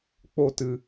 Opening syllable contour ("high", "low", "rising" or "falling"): high